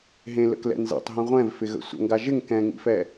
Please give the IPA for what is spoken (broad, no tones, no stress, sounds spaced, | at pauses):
ɦ ẽ l ə̰ k l ɛ̰ n z ɛ̰ tˤ ɦ ĩ ʁʷ ɛ̃ v f ɪ ɣ ə̰ sʷ ə̰ ŋ ɡ a ʒ ɪ ŋ k ɛ̃ ŋ ḭ f ɛ